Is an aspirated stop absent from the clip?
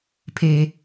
no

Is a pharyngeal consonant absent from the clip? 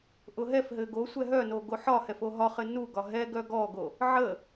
no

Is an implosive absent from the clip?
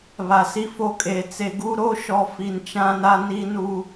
yes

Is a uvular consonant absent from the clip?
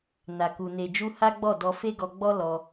yes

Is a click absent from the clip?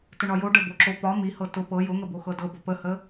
no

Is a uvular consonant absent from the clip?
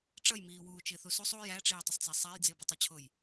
yes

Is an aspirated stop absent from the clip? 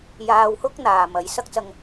yes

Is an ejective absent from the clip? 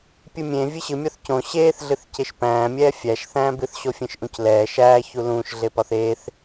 yes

